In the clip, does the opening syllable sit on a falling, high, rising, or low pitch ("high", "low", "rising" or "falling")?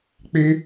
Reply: high